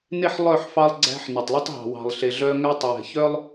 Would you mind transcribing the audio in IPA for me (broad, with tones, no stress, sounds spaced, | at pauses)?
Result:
n e˦ ħ lˠ œ˦˨ ħ f ɑ˦ lˠ ɡ͡ǀ æ̤˦ ħ n ɵ˨ tˤ lˠ u˦ tˤ ɦ ɑ̤˨ w ɑ̤˨ lˠ ɬ e˨ ɮ œ˦ ŋ æ˦ tˤ w ɛ̤˨ ç œ˦ lˠ